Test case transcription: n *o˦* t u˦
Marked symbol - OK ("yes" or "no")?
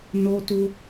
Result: yes